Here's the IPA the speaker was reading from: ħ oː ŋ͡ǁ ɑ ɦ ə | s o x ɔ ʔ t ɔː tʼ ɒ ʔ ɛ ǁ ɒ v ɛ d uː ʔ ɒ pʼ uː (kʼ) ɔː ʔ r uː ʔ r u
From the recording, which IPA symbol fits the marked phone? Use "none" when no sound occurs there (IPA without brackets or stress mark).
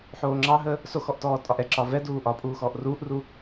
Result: x